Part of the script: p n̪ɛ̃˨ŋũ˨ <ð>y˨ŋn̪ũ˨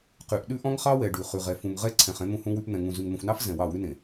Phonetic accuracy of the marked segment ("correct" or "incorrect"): incorrect